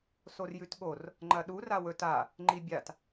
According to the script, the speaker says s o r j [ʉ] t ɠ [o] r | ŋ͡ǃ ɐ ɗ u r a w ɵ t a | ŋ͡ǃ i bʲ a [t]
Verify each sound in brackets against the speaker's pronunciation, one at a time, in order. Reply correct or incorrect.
correct, correct, correct

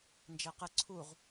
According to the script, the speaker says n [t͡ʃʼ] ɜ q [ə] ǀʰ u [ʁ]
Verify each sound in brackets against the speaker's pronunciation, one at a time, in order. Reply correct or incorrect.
incorrect, correct, correct

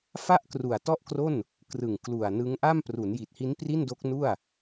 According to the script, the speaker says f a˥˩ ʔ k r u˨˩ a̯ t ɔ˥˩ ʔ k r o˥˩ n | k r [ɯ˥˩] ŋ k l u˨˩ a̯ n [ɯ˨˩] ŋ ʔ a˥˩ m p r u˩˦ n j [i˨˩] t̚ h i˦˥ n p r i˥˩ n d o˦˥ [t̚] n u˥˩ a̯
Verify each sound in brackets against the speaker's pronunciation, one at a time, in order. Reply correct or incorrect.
incorrect, incorrect, correct, incorrect

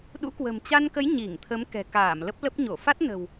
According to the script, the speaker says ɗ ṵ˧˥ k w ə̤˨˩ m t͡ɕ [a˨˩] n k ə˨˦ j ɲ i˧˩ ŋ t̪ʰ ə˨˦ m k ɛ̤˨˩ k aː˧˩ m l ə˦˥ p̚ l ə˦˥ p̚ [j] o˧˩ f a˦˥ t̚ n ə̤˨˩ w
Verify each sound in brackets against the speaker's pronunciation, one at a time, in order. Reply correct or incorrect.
incorrect, incorrect

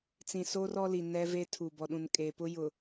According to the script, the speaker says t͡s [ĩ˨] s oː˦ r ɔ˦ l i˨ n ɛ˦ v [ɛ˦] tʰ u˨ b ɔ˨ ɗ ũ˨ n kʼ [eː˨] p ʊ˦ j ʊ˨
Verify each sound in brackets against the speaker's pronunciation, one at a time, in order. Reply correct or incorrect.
correct, incorrect, correct

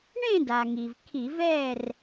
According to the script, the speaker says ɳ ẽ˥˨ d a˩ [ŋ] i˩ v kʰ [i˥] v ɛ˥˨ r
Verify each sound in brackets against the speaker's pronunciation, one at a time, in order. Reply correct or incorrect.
correct, incorrect

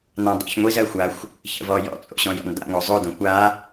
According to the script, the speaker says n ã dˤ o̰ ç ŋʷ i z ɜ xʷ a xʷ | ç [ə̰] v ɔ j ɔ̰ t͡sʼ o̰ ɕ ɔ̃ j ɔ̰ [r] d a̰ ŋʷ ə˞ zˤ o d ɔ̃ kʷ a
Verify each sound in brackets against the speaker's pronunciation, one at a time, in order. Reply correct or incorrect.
correct, incorrect

